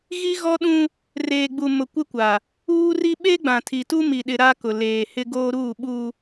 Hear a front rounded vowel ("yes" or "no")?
no